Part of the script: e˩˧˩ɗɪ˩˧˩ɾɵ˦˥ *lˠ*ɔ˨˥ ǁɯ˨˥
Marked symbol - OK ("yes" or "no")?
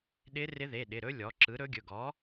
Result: no